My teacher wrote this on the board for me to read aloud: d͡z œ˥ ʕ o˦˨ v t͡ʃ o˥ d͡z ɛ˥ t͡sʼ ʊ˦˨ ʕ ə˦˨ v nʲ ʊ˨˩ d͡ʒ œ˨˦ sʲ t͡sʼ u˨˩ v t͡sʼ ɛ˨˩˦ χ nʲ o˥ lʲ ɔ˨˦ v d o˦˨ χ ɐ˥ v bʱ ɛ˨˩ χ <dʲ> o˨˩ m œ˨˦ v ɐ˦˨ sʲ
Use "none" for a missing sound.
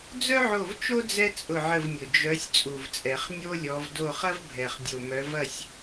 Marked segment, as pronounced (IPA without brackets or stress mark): dʲ